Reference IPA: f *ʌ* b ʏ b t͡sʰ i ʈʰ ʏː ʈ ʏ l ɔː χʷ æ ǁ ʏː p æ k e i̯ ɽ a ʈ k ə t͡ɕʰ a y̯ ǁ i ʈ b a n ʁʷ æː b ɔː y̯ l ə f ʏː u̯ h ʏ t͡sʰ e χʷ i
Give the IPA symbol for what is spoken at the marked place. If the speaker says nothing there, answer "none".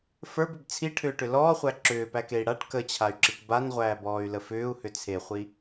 ə˞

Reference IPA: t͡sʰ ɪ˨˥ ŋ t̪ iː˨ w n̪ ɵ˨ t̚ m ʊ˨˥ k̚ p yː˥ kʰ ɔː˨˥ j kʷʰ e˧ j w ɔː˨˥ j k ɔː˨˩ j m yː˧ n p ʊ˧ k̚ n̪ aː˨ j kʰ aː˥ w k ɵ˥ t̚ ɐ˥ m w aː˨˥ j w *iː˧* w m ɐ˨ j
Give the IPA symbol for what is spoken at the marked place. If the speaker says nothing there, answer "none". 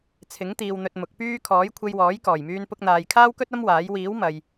iː˨˥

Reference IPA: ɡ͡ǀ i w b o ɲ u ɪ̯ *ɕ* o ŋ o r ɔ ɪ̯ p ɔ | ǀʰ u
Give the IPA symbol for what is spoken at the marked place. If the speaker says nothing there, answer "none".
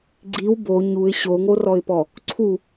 ɕ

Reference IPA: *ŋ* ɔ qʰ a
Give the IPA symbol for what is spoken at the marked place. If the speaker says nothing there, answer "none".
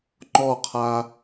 ŋ͡ǃ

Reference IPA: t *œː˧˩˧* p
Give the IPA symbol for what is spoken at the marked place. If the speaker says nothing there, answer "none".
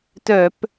œ˧˩˧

